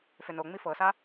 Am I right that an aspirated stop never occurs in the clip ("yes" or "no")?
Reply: yes